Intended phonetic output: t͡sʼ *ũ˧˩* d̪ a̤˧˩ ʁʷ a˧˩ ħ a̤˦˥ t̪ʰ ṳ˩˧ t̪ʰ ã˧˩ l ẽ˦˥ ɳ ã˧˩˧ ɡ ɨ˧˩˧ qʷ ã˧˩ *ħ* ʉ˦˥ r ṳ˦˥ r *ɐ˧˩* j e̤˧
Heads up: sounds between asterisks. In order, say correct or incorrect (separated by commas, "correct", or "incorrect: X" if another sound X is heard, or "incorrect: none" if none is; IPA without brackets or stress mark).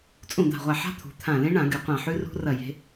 correct, correct, correct